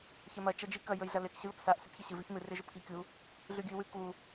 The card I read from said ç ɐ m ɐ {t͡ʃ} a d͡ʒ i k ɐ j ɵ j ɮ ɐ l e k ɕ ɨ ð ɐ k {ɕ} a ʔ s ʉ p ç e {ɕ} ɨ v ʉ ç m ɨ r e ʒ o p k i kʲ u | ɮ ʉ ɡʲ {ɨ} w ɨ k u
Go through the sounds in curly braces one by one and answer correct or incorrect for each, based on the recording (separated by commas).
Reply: correct, incorrect, correct, incorrect